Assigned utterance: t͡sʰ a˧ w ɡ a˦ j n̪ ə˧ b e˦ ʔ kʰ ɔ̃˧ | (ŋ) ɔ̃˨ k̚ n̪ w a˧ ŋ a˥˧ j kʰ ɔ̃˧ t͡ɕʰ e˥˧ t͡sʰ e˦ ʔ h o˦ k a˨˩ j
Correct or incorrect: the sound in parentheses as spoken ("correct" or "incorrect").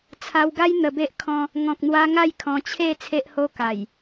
correct